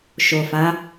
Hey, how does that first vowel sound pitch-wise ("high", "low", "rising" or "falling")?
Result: low